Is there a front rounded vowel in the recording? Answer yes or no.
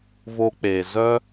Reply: yes